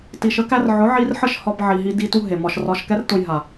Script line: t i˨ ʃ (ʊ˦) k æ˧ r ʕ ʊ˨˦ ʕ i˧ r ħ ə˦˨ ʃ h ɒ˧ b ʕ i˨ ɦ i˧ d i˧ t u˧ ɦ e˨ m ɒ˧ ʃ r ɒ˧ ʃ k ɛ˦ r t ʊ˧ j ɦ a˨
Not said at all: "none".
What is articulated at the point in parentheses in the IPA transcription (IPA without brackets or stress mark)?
ə˦